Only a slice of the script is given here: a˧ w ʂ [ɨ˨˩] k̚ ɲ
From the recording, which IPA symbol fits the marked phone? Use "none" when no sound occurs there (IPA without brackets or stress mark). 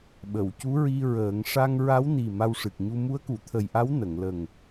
ɨ˨˩